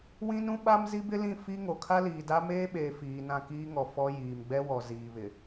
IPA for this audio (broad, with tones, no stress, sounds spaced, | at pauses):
w ĩ˦ n ũ˦ ɓ a˦ m z i˦ b ɪ˦ l ĩ˦˨ f i˦ ŋ o˨ kʰ a˦ l iː˨ d a˦ m eː˦ ɓ eː˨ f iː˨ n ã˦˨ k iː˦ ŋ ɔ˨ f ɔ˦ j iː˨ m ɡ͡b ɛ˦ w ɔ˨ z iː˨ β ɪ˨